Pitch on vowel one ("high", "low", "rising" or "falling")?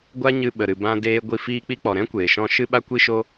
high